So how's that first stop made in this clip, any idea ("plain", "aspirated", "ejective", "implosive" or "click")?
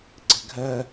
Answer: click